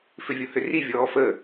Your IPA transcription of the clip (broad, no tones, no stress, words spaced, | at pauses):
fʏvʲohʏri vʲɔːfə